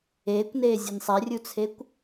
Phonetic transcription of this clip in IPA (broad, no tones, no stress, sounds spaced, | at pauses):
eː kʷ n eː zʲ e n sˤ ɛ rʲ u t͡sʰ e kʷ